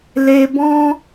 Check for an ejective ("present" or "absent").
absent